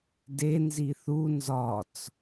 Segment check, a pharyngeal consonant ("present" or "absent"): absent